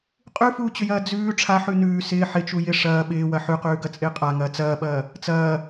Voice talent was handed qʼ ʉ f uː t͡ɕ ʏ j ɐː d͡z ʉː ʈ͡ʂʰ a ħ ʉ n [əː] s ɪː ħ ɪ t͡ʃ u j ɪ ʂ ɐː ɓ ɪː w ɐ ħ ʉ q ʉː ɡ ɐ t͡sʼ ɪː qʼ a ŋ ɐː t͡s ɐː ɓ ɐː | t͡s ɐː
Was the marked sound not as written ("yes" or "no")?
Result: yes